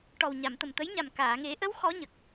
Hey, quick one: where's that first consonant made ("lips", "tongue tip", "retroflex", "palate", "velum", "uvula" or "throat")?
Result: retroflex